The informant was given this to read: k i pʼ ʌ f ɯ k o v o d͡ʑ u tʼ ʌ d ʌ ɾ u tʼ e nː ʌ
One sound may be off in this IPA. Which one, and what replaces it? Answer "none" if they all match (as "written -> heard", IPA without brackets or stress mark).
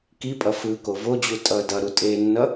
none